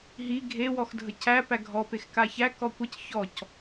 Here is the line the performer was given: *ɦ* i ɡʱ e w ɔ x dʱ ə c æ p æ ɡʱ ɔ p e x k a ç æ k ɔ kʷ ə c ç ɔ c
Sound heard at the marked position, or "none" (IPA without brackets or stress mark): ɦ